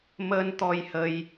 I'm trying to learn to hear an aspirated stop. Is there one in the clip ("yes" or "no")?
no